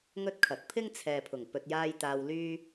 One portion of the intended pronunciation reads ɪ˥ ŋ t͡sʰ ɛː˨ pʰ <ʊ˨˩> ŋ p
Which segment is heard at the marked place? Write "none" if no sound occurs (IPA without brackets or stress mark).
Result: ʊ˨˩